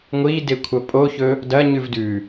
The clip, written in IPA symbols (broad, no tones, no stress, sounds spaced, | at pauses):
ŋʷ i d e kʷʰ ɐ pʼ o ç ɵ | d ɐ ɲ ʉ v d ʉ